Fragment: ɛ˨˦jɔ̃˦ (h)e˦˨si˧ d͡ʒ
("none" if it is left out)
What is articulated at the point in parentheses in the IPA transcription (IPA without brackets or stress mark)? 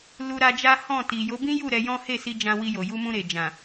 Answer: h